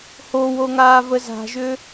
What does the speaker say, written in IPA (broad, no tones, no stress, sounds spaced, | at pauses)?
h o w o ŋ aː v ə z a̤ ʒ ʏ